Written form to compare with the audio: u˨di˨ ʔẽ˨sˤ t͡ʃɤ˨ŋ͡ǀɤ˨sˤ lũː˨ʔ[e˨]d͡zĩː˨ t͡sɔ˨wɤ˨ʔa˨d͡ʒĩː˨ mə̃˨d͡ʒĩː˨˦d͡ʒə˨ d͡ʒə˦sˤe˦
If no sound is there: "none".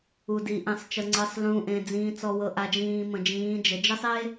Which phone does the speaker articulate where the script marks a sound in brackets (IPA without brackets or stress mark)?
ẽ˨